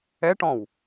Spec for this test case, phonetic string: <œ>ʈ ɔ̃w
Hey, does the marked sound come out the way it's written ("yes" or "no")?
no